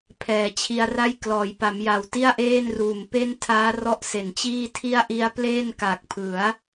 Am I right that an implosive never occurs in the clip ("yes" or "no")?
yes